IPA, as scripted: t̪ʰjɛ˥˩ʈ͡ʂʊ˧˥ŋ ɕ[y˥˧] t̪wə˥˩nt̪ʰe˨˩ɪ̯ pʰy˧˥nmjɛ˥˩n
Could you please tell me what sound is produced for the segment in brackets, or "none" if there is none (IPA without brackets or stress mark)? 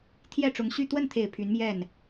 y˥˧